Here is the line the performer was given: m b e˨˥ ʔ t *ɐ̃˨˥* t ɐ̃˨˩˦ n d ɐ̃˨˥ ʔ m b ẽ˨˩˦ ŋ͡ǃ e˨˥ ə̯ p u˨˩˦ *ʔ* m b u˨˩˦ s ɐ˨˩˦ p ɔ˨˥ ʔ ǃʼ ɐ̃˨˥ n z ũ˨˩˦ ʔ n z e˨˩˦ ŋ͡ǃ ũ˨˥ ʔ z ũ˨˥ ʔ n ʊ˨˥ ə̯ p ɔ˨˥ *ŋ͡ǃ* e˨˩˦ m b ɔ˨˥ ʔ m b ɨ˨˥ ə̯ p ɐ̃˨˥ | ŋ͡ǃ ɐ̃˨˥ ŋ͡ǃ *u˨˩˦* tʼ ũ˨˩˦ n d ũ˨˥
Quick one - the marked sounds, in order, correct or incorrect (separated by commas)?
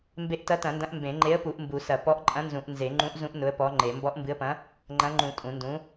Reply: incorrect, correct, correct, incorrect